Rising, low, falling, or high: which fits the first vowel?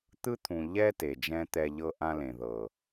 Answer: high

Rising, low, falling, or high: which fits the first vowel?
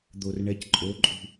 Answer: low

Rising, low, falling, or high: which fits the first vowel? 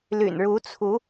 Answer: low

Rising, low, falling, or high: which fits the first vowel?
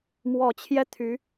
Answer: low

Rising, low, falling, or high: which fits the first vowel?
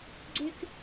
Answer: high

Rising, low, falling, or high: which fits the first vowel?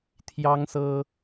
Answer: high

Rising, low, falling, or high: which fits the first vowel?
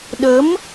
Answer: rising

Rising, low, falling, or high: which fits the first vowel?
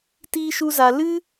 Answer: high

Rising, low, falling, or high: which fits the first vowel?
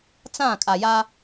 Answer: falling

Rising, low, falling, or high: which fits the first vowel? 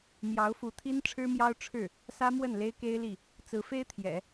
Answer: rising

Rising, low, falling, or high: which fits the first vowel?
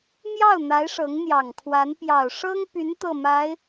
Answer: falling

